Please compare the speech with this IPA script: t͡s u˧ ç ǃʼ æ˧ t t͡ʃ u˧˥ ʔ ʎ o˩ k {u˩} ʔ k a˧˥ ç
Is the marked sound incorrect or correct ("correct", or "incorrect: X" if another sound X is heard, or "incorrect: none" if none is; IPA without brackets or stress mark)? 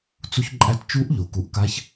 correct